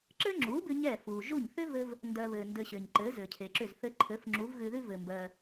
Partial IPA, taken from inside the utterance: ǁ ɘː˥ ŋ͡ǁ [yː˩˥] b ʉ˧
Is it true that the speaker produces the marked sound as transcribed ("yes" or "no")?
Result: no